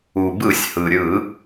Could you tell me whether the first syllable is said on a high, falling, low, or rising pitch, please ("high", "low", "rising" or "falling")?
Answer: low